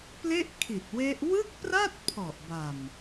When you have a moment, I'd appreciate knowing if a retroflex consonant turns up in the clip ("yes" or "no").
no